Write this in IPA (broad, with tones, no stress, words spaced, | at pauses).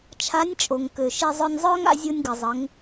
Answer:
t͡ʃʰa˧˥nʲt͡ʃʼo˩ŋkø˩ʃe˧ zˤœ˧nʲzˤœː˥ŋa̰˧ zʲo˧nʲ ɡə˩zˤə˩˧ŋ